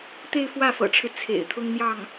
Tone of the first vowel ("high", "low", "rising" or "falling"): falling